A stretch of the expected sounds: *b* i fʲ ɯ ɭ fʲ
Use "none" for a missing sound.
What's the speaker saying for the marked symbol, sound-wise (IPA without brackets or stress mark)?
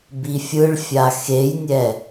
b